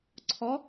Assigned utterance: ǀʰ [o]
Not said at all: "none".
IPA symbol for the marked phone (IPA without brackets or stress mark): ɔ